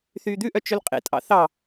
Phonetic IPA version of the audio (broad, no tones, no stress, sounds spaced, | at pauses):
θ yː d̪ ʉ ʔ œ t͡ʃ ɵ l qʼ ḛ tʼ ɑ̰ θ ɑ